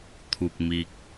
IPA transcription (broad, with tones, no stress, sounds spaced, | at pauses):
t̪ʰ u˨ k̚ m i˨ k̚